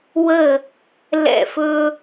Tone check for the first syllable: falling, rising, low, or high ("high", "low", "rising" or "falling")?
falling